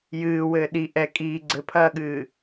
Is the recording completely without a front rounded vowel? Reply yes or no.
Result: yes